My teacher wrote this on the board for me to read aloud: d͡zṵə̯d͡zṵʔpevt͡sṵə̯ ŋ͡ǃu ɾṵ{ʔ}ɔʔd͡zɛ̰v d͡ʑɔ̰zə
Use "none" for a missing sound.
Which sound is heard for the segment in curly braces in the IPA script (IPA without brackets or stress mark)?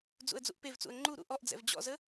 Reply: ʔ